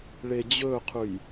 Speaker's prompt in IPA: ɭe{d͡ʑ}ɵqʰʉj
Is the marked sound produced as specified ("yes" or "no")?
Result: yes